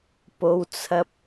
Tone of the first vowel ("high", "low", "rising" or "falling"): high